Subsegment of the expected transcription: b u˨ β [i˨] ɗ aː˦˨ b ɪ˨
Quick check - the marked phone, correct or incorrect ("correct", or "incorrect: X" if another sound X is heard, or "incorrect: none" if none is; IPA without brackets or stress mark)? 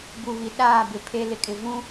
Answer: correct